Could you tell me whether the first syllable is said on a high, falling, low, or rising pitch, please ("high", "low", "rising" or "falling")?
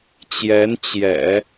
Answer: rising